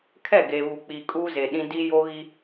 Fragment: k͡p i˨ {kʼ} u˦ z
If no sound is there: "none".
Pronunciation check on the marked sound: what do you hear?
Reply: kʼ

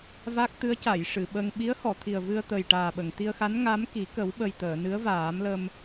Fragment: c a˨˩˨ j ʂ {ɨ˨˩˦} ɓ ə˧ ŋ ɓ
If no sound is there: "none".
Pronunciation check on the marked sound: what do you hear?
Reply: ɨ˨˩˨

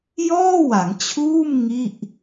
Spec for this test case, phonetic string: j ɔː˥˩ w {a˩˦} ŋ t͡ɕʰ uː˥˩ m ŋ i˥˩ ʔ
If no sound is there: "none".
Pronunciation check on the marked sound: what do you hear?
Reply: a˩˦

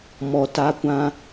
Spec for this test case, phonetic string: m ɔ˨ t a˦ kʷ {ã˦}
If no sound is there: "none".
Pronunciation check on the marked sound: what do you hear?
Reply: ã˦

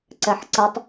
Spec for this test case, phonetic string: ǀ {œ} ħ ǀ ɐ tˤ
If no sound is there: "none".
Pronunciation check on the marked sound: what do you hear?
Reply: ɛ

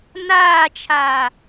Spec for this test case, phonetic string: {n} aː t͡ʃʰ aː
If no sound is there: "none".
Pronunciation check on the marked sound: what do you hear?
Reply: n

